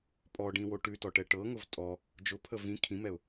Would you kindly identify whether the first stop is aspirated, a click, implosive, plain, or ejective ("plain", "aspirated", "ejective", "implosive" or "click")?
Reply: ejective